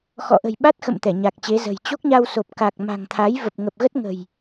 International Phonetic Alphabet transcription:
x ɔ̰˧˨ ʔ ə̤˨˩ j ɓ a˦˥ t̚ x ə̰˧˨ m t̪ ɛ˧˩ ɲ a˨˩ k̚ t͡ɕ e˨˦ z ə̤˨˩ j t͡ɕ o˦˥ k̚ ɲ a˧ w s o˨˩ p̚ k a˨˩ k̚ m a̤˨˩ ŋ t̪ʰ a˨˦ j v ə˨˩ p̚ ŋ ə˨˩ p̚ ɣ ə˦˥ t̚ ŋ ə̤˨˩ j

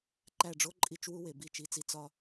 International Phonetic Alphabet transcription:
ǃ æ˦˨ ɖ͡ʐ o˥ ǃʼ i˦˨ t͡ʃ w u˥ w e˩˧ b i˦˨ t͡ʃ i˦˨ t͡s i˥ t͡s ɒ˥

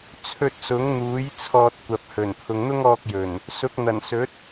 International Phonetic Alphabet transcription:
t͡sʰ ɵ˧ t̚ s ʊ˨˥ ŋ n̪ uː˨˥ j t͡sʰ ɔː˧ t̚ kʷ ɐ˨ p̚ h ɵ˨˩ n pʰ ʊ˨ ŋ n̪ ʊ˥ ŋ ɔː˧ k̚ j ɵ˨˩ n | s ʊ˨˥ k̚ n̪ ɐ˨˩ n s ɵ˨˥ t̚

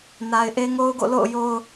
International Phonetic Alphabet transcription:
n a˨ ɪ̯ ʔ e˦ ŋ o˦ ʊ̯ ɡ o̰˦˨ l o̰˦˨ ʊ̯ j o˦ ʊ̯

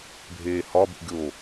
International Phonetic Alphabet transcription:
bʱ eː h ɒ b ṵ ɡʲ o

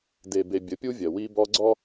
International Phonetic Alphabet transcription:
d e˨ b e˨ bʲ ə˨˦ pʲ u˦ vʲ ɜ˨ w i˦ b ɔ˦ ɡ͡ǀ ɔ˦

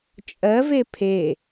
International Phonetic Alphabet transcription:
t͡ʃʼ ɜ v e pʰ e

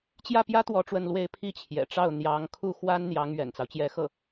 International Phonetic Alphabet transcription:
t͡ɕ j ä˥˩ p j ä˥ t̪ w ɔ˥˧ ʈ͡ʂ w ə˥˧ n l w e˥˧ ɪ̯ pʰ i˥˩ t͡ɕʰ j ɛ̰˨˩ ʈ͡ʂ ɑ˥˩ ʊ̯ n̪ j ɑ˧˥ ŋ kʰ u˥˩ x w a˥ n n̪ j ɑ˧˥ ŋ ɥ ɛ̰˨˩ n t͡s ɑ˦ ʊ̯ t͡ɕ j ɛ˧˥ x ɤ˥˩

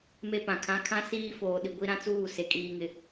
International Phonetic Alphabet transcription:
m e˦ p ã˨ kʰ ã˦ kʰ ã˦ s iː˦ f oː˨ ɗ i˨ ɡʷ i˦ ɾ ã˦ t͡s uː˦˨ s e˨ kʼ iː˨ ŋ ɪ˨

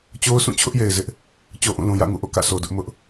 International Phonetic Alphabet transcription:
t͡ɕ o˦ ʊ̯ s ũ˦˨ t͡ɕʰ ʊ˦ ʔ j e˨ ɪ̯ z ɪ˦ ʔ | t͡ɕ o˦ ʔ ũ˦˨ l ũ˨ j ä̰˦˨ ŋ ṵ˦˨ ʔ o̰˦˨ k ä̰˦˨ s o˨ d ʊ˦ ʔ m ʊ˦ ʔ

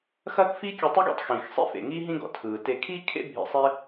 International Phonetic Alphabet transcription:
x ɐː˥ k f i˥ kʲ ʉ˧ tˤ i˥ ɡ ḛ˥ tˤ x ĩ˩ x sˤ ḭ˥ f ḛ˩ ŋ i˥ ɦ ĩ˥ ɡ ɔ̰˩ tʰ ɯː˩ t e˧ kʰ i˥ kʰ ḛ˥ bʱ ḭ˧ sˤ e˥

